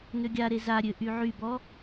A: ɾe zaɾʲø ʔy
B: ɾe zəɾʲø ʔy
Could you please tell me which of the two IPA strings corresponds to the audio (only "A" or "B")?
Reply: A